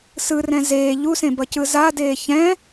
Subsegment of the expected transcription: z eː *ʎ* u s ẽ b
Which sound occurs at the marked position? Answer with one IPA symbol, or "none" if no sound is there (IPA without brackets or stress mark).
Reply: ʎ